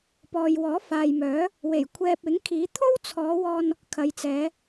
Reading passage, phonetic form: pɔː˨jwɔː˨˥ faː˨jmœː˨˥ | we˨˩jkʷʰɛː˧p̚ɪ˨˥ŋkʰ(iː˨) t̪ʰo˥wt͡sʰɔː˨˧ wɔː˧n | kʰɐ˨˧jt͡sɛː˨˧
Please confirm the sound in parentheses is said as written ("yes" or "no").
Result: no